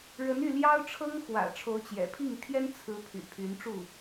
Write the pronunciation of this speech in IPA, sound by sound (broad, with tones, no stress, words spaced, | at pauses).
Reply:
ɻə˧˥ny˥˩ljɑ˥ʊ̯ʈ͡ʂʰɤ˥ŋ xwä̰˨˩ ʈ͡ʂʰo˧˥ʊ̯t͡ɕjɛ̰˨˩pʰi˥˩ŋ t̪ʰjɛ˥nt͡sʰɹ̩˧˥ pʰy̰˨˩pʰy˧˥nʈ͡ʂu˥˩